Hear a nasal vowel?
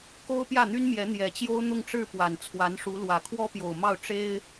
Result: no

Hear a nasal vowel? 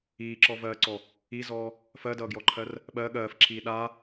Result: no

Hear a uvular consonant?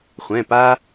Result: yes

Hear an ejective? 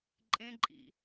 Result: yes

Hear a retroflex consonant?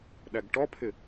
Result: yes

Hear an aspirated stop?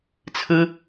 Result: yes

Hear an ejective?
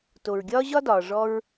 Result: no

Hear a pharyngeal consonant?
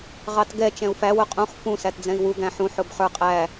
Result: yes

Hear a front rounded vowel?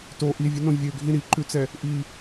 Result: yes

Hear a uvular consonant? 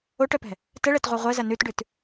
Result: yes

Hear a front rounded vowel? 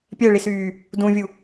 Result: yes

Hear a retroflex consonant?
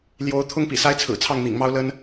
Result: no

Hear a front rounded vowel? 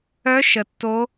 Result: yes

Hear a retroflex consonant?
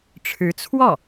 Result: yes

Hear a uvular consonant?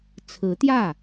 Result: no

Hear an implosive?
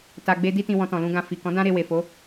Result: no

